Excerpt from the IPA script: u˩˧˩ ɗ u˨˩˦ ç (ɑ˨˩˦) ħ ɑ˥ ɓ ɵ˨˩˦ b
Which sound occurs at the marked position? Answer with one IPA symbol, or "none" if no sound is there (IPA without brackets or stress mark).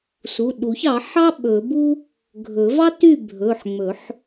ɑ˨˩˦